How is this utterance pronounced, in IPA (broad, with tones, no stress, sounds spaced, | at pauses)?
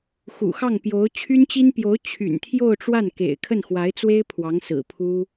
x ṵ˨˩ x ɑ˥˩ ŋ p j o˧˥ ʊ̯ t͡ɕʰ y˥ n t͡ɕ i˥ n p j o˧˥ ʊ̯ t͡ɕʰ y̰˨˩ n t̪ʰ j o˥˧ ʊ̯ ʈ͡ʂ w a˥˩ n k ḛ˨˩ ɪ̯ kʰ ə˥˩ n x w a˧˥ ɪ̯ t͡s w e˥ ɪ̯ pʰ w ɑ˧˥ ŋ s ɹ̩˨˩ pʰ u˥